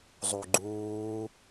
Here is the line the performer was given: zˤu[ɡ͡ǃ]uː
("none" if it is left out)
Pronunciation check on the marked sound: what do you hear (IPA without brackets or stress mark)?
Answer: ɡ͡ǃ